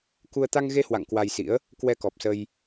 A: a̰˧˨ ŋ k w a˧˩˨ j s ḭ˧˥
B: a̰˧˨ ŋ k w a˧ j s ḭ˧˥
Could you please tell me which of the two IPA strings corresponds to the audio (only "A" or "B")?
B